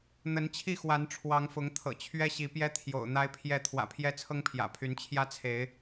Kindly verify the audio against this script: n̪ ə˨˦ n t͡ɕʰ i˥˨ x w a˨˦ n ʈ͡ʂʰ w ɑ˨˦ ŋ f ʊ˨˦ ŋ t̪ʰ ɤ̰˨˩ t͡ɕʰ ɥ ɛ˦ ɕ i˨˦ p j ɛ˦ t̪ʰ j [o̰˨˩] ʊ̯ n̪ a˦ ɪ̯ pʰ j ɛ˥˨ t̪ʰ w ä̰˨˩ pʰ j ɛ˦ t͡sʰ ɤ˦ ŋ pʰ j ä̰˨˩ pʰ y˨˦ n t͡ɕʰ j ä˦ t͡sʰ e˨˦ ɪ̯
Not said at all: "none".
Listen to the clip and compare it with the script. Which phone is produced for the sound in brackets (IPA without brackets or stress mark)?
o̰˨˩